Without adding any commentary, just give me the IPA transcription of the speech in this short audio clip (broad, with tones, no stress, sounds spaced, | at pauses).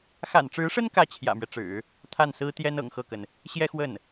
x a̰˨˩ n ʈ͡ʂ ɻ̩˧˥ ʂ ə˥ n k ä˥ t͡ɕʰ j ä̰˨˩ m ɥ ɛ˦ ʈ͡ʂ ɻ̩˨˩˦ | t̪ʰ a˥˩ n s ɹ̩˥ t̪ j ɛ˥ n ɤ̰˨˩ ŋ x ɤ˥˩ k ə˩ n | ɕ j ɛ˥ x w ə˥˩ n